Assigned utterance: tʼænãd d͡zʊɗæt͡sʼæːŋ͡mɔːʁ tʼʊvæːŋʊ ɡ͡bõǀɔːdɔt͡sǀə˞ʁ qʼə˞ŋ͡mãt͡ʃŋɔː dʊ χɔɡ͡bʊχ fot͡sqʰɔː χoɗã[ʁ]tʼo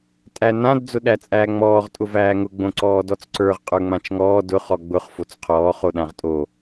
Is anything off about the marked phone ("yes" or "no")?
no